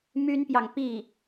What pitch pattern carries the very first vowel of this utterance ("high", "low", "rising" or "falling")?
high